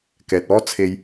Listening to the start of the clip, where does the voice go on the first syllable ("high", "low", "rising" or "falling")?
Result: low